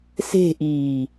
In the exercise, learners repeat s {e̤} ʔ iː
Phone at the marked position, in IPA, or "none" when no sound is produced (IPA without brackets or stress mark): e̤